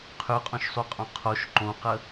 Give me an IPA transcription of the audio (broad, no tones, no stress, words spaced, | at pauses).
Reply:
qʰyqʼõʃsˤuqʼõ qʰoʃ ǃõqə